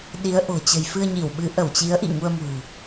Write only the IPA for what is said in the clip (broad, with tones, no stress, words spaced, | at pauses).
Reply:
ɗi˨˦ə̯ʔo̤˨˩ t͡ɕə̤˨˩jfɨ˧ə̯ɲi˧˩wɓɨ˨˦ ʔə˧˩wt͡ɕi˨˦ə̯ʔḭ˧˨ ŋu˧ə̯mṳ˨˩